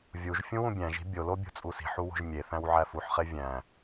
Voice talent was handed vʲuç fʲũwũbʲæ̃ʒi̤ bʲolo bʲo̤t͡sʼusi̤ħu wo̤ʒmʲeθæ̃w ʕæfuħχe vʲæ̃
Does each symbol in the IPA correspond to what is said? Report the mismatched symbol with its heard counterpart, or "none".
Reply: ç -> ʒ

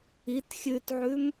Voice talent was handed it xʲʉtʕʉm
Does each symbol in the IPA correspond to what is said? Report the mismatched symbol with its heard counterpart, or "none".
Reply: none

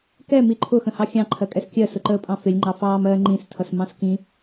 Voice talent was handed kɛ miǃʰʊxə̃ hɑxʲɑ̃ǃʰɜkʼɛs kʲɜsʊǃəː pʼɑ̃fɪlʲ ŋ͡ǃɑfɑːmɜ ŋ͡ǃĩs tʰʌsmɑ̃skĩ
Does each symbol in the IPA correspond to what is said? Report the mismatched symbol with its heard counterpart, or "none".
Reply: none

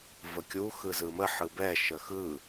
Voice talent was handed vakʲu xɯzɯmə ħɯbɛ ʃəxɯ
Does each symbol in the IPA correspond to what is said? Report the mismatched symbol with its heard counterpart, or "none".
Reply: a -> ə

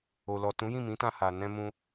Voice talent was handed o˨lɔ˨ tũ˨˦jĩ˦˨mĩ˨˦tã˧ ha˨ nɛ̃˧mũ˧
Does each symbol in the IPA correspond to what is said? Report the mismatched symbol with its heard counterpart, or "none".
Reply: none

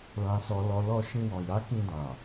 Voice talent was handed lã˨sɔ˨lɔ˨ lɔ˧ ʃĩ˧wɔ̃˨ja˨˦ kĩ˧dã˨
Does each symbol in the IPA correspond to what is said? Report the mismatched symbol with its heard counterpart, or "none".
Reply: none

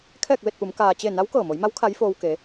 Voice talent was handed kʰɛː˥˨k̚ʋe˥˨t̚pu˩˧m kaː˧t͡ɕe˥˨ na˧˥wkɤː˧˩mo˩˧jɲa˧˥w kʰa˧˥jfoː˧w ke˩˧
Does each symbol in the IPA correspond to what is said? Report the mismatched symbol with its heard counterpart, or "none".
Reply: ɲ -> m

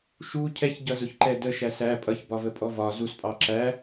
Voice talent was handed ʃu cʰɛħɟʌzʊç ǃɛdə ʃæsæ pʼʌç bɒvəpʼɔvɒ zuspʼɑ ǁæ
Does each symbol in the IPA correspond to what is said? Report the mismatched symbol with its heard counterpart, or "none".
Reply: ħ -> ç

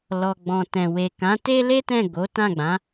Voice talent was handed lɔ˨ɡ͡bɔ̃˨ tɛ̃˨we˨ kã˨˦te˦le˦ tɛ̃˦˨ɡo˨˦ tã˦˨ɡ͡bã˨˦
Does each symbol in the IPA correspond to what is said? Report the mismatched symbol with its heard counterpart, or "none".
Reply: none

